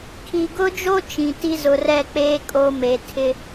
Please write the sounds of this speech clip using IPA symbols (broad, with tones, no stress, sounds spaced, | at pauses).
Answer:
kʰ i˨ ɡ ʊ˦ d͡ʒ o˦ t͡ʃ ĩ˨ t i˦ z ʊ˨ r ɛ˦˨ k͡p eː˦ kʼ o˦ m e˨ tʰ ɪ˦